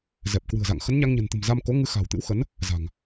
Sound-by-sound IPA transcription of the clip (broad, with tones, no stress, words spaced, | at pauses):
zɛ˨˩p̚ kwɨ̤˨˩ə̯za̰˧˨ŋ xə˨˦nɲa˧ŋɲə̤˨˩nt̪ə̤˨˩m za˧mko˨˦ŋɨ˧xa̤˨˩w t̪ɨ̰˧˥wxə˨˦n | za̤˨˩ŋ